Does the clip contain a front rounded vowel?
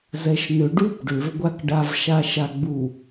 yes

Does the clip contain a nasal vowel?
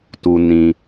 yes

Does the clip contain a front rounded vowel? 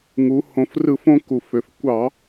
yes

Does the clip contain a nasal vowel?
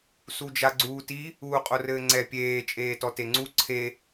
no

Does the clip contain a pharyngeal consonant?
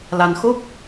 no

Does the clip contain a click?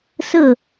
no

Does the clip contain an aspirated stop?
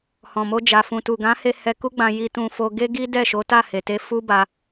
no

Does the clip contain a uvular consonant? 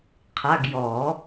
yes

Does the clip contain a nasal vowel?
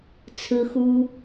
no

